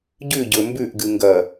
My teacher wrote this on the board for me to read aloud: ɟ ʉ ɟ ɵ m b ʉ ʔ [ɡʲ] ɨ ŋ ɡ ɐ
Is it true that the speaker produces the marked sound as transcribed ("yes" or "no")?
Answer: no